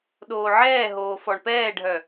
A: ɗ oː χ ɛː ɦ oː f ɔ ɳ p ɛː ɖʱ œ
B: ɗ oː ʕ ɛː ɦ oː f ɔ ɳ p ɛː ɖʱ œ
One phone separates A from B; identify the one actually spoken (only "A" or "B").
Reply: B